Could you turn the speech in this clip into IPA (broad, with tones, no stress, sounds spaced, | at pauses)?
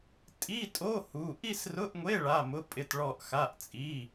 tʼ i˧˥˧ tʼ o˧˥˧ h u˧˥˧ ʔ i˥˧ s r ʊ˧˥˧ ʔ ŋʷ e˧˥˧ ɭ a˧˥˧ m ʊ˧˥˧ pʼ ɪ˥˧ t ɭ ɔ˥˧ ʔ x a˧˥˧ ʔ t͡sʼ i˧˥˧